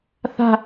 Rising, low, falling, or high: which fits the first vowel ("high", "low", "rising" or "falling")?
falling